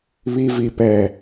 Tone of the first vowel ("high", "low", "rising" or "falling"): low